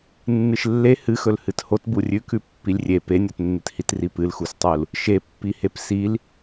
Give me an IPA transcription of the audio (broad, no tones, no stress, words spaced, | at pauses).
nːɨʃlːe hɨxɵl hɨthot burʲʉkʉ pːilʲrʲe penʲotnːɨthit ripɨlxustˤul | ʃepːihep sil